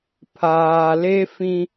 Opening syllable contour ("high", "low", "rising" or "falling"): low